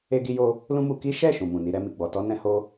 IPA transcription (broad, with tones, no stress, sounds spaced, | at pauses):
e˦ ɡ i˦ j o˦ | l ũ˦ m u˧ k i˦ ʃ ɛ˦˨ ʃ ũ˨ m ũ˨ n i˧ ɾ ɛ˧ m i˨ ɡ͡b ɔ˨ t ɔ˧ n ɛ̃˧ h o˦